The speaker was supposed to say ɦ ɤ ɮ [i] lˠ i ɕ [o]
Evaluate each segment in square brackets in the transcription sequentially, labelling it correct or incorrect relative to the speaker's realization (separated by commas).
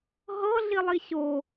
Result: correct, correct